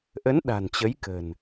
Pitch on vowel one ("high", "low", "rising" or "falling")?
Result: rising